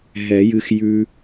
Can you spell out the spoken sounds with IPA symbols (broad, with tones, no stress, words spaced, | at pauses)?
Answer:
ɦɛ˨˩˦jɨ˧xjʉ˧